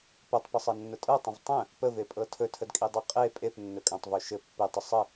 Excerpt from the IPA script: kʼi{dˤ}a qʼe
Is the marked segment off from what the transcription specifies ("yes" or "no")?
no